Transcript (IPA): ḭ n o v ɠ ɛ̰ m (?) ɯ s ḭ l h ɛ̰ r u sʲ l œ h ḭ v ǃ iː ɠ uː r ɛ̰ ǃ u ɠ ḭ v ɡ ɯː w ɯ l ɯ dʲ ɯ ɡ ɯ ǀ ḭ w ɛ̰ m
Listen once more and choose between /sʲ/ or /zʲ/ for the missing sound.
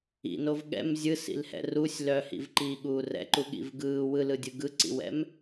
zʲ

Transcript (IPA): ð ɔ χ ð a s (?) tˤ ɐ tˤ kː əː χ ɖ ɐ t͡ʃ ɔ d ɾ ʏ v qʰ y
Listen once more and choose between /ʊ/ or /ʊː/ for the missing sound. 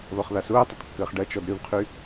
ʊː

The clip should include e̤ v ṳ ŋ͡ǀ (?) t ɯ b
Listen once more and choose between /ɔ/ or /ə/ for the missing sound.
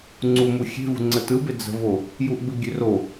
ə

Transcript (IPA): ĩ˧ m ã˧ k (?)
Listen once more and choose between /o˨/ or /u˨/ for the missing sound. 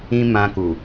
u˨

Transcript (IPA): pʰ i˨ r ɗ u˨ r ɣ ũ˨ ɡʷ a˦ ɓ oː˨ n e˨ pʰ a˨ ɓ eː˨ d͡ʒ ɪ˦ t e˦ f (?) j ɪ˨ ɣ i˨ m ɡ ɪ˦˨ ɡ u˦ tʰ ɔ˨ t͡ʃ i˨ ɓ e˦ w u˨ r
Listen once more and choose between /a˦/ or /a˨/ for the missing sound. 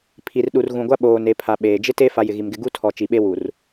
a˨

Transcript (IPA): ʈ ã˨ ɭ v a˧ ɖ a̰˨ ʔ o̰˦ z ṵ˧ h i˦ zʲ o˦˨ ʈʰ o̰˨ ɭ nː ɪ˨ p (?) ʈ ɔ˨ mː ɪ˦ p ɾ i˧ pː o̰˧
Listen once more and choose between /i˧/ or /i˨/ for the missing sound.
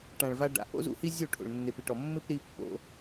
i˨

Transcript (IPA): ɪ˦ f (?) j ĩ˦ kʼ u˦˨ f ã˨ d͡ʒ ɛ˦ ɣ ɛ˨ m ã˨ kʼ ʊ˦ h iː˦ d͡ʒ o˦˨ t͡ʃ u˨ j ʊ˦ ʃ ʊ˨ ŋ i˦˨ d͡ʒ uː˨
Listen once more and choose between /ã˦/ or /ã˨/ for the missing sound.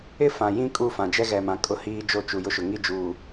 ã˨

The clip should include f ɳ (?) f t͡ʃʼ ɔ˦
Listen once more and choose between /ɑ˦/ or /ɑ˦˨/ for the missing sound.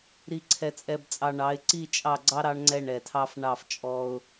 ɑ˦˨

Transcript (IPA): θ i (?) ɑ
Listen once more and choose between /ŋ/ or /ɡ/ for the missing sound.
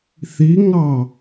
ŋ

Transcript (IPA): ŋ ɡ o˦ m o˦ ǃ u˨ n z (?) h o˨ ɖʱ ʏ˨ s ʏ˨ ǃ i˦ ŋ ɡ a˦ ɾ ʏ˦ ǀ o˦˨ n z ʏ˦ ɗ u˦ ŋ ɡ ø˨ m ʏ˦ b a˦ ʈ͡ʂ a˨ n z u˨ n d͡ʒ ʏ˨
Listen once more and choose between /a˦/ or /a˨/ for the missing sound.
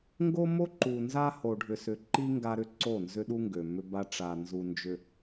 a˦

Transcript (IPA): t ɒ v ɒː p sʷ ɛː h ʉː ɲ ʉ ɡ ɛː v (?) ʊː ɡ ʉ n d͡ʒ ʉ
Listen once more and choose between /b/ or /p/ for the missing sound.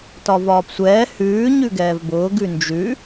b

